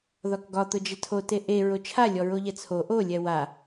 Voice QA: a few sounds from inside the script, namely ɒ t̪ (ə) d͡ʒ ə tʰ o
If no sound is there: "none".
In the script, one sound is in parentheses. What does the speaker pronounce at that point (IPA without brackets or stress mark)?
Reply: ʊ